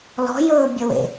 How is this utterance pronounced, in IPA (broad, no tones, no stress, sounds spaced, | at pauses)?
l ɔ̤ j ɵː bʲ ə w ḛ